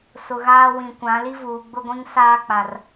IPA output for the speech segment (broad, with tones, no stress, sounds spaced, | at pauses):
s ʊ˨ ɣ aː˦ w ĩ˨ kʷ ã˨˦ l i˦ v uː˨ ɡ͡b ʊ˦ ɡʷ ĩ˦ ŋ s aː˦ k͡p a˨ r